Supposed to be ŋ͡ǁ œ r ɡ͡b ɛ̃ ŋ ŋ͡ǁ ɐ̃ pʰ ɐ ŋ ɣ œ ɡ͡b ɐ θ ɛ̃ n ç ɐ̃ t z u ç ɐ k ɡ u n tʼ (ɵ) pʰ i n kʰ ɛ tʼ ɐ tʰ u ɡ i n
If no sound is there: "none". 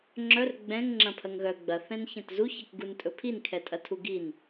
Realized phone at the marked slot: ɵ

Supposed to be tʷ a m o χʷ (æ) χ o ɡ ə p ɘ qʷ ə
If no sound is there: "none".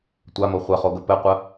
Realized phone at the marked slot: ɛ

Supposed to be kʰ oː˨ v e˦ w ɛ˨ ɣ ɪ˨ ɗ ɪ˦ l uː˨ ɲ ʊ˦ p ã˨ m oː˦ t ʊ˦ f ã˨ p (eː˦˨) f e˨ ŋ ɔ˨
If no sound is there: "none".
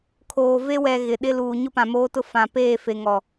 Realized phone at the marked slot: eː˦˨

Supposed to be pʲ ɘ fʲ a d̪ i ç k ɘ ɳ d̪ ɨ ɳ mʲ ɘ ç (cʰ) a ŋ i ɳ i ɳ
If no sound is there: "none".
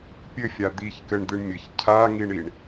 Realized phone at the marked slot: cʰ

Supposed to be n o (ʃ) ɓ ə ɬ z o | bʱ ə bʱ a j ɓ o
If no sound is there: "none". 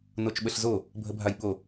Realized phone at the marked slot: t͡ʃ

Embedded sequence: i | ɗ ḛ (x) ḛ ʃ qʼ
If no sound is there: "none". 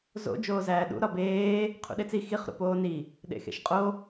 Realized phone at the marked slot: x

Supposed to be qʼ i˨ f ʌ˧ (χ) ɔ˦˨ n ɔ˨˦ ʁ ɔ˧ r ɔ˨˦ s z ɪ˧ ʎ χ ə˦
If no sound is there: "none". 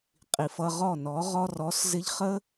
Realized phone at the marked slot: ʁ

